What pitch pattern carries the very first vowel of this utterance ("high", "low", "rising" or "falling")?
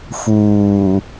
low